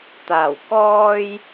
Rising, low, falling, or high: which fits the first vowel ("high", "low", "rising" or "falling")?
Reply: low